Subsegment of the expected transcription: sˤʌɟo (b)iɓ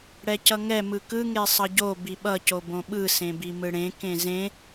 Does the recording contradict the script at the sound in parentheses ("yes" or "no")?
no